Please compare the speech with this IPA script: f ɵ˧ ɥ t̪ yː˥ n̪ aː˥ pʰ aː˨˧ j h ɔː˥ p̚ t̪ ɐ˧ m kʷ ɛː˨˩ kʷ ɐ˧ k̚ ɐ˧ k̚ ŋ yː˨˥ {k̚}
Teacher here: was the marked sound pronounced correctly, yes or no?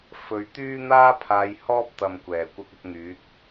yes